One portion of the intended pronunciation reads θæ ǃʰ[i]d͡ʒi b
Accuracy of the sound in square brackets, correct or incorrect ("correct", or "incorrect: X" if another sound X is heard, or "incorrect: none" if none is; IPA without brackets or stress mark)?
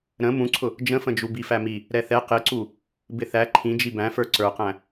incorrect: ĩ